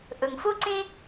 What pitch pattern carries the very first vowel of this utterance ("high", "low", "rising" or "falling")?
low